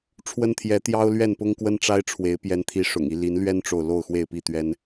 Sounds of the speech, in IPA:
ʈ͡ʂʰ w ə˦ n t̪ʰ j ɛ˨˦ t̪ j ɑ˦ ʊ̯ l ɥ ɛ˥˨ n p ʊ˦ ŋ k w ə˦ n ʈ͡ʂ a˦ ɪ̯ ʈ͡ʂʰ w e˨˦ ɪ̯ p j ɛ˨˦ n t̪ʰ i˨˦ ʂ ʊ̰˨˩ ŋ i˦ l i˨˦ n l ɥ ɛ˦ n ʈ͡ʂ o˨ ʊ̯ l o˥˨ ʊ̯ x w e˥˨ ɪ̯ p i˥˨ t̪ ɥ ɛ˦ n

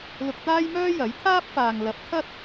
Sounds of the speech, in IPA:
l ʊ˧ k̚ t̪ aː˥ j m œː˥ j ɐ˨˥ j t̪ʰ aː˥ p̚ f aː˨ ŋ l ɐ˨˥ p̚ t̪ʰ ɐ˥ t̚

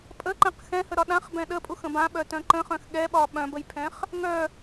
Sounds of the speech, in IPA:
pʼ ə ǃ ɛ̃ q x ɛ̃ h ə ɾ ɒ ɗ ã χ b ɛ̃ ɗ ə pʼ u x ə̃ b ã ɓ œ t œ̃ ǃ ə̃ χ œ̃ x ɠ ɛ ɓ ɒ ɓ œ̃ b ə j pʰ ɛ̃ χ | ŋ œ

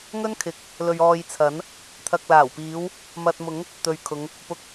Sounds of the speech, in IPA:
ŋ ɵ˥ n kʰ ɪ˨˥ k̚ | l ɵ˨ ɥ ɔː˨ j t͡sʰ ɐ˨˥ n | t̪ʰ ɐ˨ k̚ l aː˨˩ w p iː˨˧ w | m ɐ˨ t̚ m ʊ˨˥ ŋ | t̪ ɵ˨ ɥ kʰ ʊ˨˧ ŋ | p ʊ˨ k̚

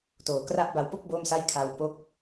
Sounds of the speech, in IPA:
t oː˨˩ k r a˦˥ ʔ b a˧ w p o˥˩ k̚ b o˥˩ m s a˥˩ j kʰ a˧ w p o˦˥ k̚

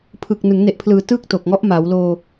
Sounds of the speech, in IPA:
pʰ ɯ˨˩ k̚ n ɯ˩˦ ŋ n e˨˩ ʔ pʰ l ɯː˩˦ t ɯː˥˩ k̚ t o˨˩ k̚ ŋ ɔ˦˥ ʔ m a˩˦ w l oː˧

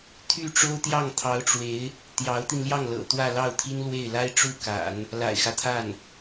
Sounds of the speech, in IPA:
t̪ʰ y˥˩ ʈ͡ʂ o˥ ʊ̯ t̪ j ɑ˥˩ ŋ t̪ʰ ɑ˧˥ ʊ̯ ʈ͡ʂ w e˧˥ ɪ̯ | t̪ j ɑ˧˥ ʊ̯ t̪ i˧ n l j ɑ˥˩ ŋ l ɤ̰˨˩ t̪ w ä˥˧ l ɑ˥˩ ʊ̯ t̪ʰ i˥ n l w e˥˩ ɪ̯ l a˥ ɪ̯ ʈ͡ʂ u˥˩ k a̰˨˩˦ n | l a̰˨˩ ɪ̯ x ä˦ t̪ʰ a˥˩ n

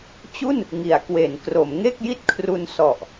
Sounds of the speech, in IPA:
t͡ɕ u˥˩ n | ŋ i˩˦ a̯ k w e˩˦ n k r o˩˦ m ŋ e˥˩ k̚ j i˥˩ t̚ kʰ r u˧ n s ɔ˨˩ ʔ

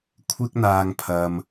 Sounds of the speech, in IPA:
kʷʰ ɪ˧ k̚ n̪ aː˨ ŋ pʰ ɐ˨ m

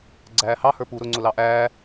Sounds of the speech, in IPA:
ɡ͡ǀ æː h ɑ h ə˞ p u ɾ ʊ ŋ͡ǀ ʊ l ɑ ʔ æː

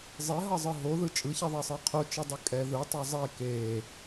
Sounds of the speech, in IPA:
zˤ e ɦ ʌ zˤ ɯ ɦ o ð ɯ t͡ʃʼ ɯ ç i ðˤ ɛ sˤ ɯ qʰ o t͡ʃ ɯ dˤ ɯ kʼ ɛ ð ɯ tˤ ɯ zˤ e k e

